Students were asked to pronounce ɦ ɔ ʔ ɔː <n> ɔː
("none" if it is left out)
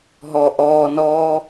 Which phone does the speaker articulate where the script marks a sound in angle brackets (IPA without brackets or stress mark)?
n